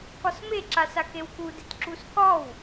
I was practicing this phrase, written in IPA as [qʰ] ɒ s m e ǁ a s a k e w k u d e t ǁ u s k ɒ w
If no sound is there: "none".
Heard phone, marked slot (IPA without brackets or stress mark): k